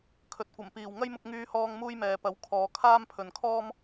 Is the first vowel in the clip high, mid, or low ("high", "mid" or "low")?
mid